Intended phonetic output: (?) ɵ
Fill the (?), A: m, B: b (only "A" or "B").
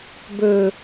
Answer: B